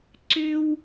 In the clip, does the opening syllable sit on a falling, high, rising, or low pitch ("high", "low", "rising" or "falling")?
high